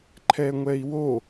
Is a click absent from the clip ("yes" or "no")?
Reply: no